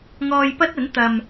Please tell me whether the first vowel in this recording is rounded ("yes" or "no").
yes